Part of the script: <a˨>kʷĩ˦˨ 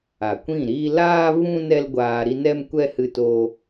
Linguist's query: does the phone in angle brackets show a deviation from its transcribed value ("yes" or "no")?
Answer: no